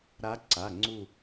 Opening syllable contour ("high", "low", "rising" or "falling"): rising